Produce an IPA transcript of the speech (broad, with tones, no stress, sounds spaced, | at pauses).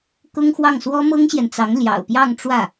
k ʊ˥ ŋ x w ɑ˥˩ ŋ s w ɔ˥ m ɤ˥ ŋ ɕ j ɛ˨ n t͡s ɑ˧˥ ŋ l j ɑ̰˨˩ ʊ̯ p j ɑ˥˧ ŋ ʈ͡ʂ w ä˥˩